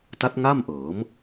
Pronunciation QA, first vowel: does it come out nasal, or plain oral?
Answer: oral